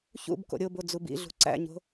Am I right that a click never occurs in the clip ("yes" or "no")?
no